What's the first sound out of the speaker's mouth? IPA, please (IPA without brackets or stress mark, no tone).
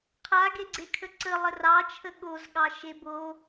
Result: qʰ